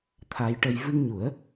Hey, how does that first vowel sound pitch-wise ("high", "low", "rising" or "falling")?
rising